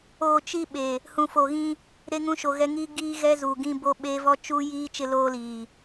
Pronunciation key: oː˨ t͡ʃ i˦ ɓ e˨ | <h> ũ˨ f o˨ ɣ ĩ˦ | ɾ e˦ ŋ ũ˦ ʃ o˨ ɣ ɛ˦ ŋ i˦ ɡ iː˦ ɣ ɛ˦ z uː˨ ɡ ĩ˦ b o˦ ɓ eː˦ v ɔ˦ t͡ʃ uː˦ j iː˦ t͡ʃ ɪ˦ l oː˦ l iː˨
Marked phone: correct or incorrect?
correct